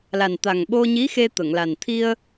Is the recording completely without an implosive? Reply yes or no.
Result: no